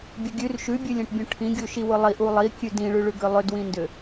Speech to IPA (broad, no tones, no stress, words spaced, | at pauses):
bʲʊɡʲʉr ʃʉbʲɯlʲẽʈbʲũ ʈʰĩɡʲuʃi wʊlˠiʔu lˠikʲʉ dĩɭʉɭʉɡʏ lˠʏdwĩndʏ